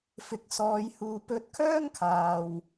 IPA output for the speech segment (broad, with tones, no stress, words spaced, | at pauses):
fɪ˨˥k̚sɔː˨˧j huː˨pɵ˧t̚kʰœː˥ŋkʰaː˨w